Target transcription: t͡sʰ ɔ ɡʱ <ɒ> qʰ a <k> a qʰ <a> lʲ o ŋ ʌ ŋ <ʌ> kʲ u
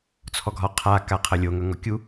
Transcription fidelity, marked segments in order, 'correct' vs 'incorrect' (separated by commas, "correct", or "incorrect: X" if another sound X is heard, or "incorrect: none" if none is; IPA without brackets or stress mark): correct, correct, incorrect: ʌ, incorrect: ɔ